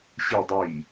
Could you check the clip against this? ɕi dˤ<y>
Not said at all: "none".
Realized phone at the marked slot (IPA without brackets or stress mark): i